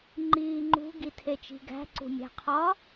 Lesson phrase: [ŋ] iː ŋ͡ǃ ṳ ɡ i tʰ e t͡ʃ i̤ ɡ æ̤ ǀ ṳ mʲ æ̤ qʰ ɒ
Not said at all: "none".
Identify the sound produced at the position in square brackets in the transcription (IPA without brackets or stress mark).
ŋ͡ǃ